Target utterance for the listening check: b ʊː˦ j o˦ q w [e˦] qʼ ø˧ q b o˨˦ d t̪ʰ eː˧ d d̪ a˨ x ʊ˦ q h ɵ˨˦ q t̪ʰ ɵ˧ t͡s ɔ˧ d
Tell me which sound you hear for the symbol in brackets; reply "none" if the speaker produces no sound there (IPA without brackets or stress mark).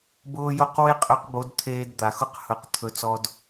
e˦